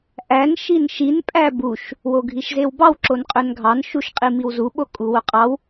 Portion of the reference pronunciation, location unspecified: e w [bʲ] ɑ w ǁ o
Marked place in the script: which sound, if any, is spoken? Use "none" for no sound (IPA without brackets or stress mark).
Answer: b